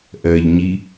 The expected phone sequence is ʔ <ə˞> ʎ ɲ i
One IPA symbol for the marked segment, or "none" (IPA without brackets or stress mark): ɜ